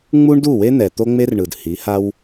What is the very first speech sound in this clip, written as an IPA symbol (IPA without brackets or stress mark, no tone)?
ŋ͡m